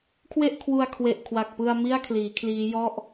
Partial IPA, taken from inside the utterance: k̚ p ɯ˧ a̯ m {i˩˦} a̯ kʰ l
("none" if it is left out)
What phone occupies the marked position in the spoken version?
i˥˩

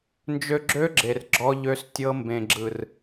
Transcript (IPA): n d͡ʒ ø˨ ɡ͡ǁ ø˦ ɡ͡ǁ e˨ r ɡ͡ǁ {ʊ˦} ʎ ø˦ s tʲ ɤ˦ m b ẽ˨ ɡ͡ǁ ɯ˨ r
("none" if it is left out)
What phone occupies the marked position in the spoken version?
ɔ˦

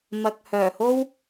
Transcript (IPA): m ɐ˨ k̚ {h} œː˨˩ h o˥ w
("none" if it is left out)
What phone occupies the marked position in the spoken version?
h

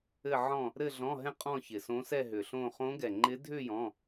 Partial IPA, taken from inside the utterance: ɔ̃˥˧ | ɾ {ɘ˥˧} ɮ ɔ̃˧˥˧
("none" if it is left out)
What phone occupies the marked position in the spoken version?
ɘ˥˧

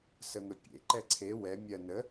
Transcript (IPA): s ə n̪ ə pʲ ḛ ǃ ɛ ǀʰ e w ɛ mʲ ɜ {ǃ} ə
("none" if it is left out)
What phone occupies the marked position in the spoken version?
n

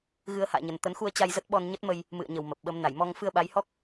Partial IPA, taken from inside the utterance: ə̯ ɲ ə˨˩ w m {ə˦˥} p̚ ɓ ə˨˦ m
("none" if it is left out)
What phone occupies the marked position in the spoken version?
ə˨˩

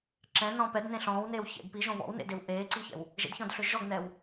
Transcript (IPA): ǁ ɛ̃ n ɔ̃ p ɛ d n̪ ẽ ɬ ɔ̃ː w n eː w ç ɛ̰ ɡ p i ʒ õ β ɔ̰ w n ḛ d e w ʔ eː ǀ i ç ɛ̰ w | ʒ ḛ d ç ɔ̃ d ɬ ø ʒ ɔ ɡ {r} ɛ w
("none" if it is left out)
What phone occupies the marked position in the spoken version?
n̪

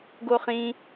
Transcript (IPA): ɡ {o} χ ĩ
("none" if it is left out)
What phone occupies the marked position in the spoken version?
o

